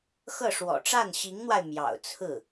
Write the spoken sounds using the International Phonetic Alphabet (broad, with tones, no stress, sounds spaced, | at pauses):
x ɤ˥˩ ʂ w ɔ̰˨˩ ʈ͡ʂ a˥˩ n ɕ i˧˥ ŋ n̪ w a˧ ɪ̯ m j ɑ̰˨˩ ʊ̯ t͡sʰ ɹ̩˥˩